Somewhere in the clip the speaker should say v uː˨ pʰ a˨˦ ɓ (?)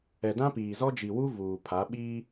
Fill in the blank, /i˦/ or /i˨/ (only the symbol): i˦